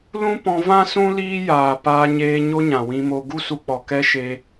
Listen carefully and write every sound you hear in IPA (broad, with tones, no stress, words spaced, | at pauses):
lũ˦pɔ̃˧ vã˦sũ˦ liː˦jaː˨ paː˧ɲeː˧ ɲo˦ɲã˨wĩ˧mo˧ ɡu˦su˧k͡pɔ˨ kɛ˦ʃe˧